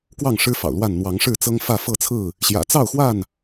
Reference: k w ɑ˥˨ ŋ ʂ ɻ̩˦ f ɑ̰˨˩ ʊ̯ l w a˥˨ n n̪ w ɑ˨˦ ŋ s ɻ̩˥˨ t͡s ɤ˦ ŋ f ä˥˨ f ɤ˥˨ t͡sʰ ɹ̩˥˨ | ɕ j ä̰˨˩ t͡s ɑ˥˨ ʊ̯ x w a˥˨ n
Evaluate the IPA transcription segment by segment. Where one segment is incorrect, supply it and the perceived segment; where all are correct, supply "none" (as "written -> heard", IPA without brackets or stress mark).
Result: s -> ʂ